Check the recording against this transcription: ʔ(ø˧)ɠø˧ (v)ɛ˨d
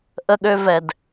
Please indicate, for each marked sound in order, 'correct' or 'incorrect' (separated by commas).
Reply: incorrect, correct